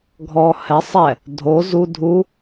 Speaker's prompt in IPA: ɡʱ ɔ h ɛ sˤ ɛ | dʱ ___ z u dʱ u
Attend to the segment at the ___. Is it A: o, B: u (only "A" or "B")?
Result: A